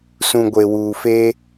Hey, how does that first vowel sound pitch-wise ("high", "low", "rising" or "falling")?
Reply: low